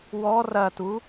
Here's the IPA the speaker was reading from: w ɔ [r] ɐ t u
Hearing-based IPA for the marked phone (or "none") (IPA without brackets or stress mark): r